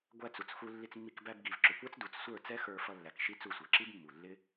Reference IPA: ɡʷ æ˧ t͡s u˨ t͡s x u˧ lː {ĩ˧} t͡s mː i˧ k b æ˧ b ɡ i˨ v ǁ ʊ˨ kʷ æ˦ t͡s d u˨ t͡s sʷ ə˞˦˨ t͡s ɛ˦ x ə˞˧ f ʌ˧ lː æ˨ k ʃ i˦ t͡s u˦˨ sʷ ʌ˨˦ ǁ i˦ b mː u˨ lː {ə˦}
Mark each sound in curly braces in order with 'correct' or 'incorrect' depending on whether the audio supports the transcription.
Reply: incorrect: i˧, incorrect: ɪ˦

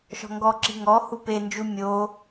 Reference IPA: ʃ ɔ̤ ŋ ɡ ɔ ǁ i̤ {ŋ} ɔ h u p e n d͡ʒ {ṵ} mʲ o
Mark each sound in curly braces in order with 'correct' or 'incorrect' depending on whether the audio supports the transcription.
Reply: correct, incorrect: u

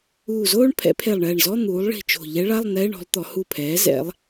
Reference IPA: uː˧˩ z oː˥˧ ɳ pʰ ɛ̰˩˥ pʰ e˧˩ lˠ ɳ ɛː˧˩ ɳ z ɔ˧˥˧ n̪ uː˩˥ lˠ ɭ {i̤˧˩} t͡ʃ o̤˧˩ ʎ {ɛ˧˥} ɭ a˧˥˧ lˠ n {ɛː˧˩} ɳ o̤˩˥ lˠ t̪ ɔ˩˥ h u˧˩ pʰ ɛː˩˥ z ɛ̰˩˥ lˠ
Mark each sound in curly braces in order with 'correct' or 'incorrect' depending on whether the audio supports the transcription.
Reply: correct, correct, incorrect: ɛː˧˥˧

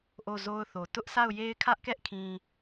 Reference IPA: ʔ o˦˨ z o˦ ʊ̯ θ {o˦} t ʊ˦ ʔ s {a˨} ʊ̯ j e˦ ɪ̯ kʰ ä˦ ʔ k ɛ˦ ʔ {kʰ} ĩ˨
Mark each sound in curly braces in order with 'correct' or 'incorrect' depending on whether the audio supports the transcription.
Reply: incorrect: o˨, incorrect: a˦˨, correct

